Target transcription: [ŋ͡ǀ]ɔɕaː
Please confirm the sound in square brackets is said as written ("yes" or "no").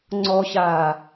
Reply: yes